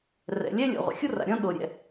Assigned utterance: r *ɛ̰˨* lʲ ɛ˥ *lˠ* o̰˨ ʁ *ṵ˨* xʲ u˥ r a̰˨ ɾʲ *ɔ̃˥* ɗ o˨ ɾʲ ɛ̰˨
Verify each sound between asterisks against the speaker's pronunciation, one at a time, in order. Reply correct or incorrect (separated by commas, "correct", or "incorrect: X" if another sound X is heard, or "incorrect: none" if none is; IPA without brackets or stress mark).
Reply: correct, incorrect: lʲ, incorrect: o̰˨, correct